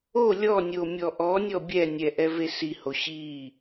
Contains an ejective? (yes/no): no